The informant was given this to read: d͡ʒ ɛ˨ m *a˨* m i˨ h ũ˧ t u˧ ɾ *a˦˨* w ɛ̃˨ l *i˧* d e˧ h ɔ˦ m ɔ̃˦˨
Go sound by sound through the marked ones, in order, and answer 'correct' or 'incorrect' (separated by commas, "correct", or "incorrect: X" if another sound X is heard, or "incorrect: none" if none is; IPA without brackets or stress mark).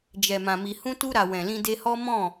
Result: incorrect: ã˨, incorrect: a˨, incorrect: ĩ˧